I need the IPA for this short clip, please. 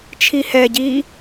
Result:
t͡ʃʰ i h ɛ ɟ iː

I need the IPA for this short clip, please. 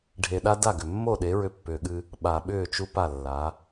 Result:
ɖʱ e˨ ɗ a˦ d a˦˨ ɡ ʏ˨ mː o˦˨ ɗ e˨˦ ɹ ʏ˦ pː ʏː˨ ɠ ɨ˦ | ɓ a˨ ɓ ʏː˦˨ t͡ʃ u˦ p a˦˨ lː a˨˦

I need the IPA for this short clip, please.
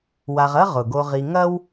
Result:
w a˨ ʁ ɐ˦ ʁ ʊ˩ ɡ o˨ ʁ i˨ ŋ ɐ˦ w

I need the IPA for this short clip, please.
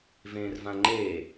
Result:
v ẽː r v ã ŋ͡ǃ eː

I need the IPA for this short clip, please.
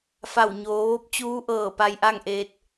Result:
f a˧˩ w ɲ oː˩˧ ʋ o˧˥ p̚ t͡ɕ uː˧˥ ʔ ɤː˧˩ p a˧ j ʔ a˥˨ ŋ ʔ eː˧ t̚

